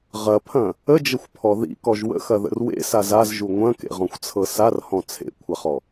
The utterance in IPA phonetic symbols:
ʁ ɐ pʰ ɐ̃ | ə d͡ʒ ə xʷ pʰ ɔ ð ḭ k ɔ ʒ w ə̰ x ɐ ð ə̰ r w ḛ s a z a z ʒ u ŋʷ ɐ̃ k ḛ ʁ ɔ̃ xʷ t͡sʰ ɤ s a r h ɔ̃ t͡sʰ ḛ kʷʰ a χ ɔ

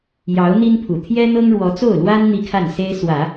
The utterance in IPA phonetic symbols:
j ɑ˧˥ ʊ̯ n̪ i˥ n pʰ u˨˩ t̪ʰ j ɛ˥ n̪ ɤ˥ ŋ ɻ w ɔ˧˥ t͡s o˥˩ ʊ̯ l w a˥ n n̪ i˥˧ kʰ a˥˩ n s e˥ ɪ̯ s w ä˨˩˦

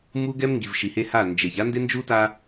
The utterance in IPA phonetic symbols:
m u˦ ɡ ɛ˦ m ŋ ɡ i˨ v ʃ i˨ h e˦ h a˦˨ n d͡ʒ e˨ ç a˦ n d e˦ n d͡ʒ u˦ t a˦

